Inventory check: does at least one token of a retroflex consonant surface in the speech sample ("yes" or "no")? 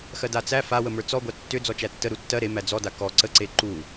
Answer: no